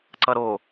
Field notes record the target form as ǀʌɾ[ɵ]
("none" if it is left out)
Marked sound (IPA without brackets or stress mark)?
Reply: o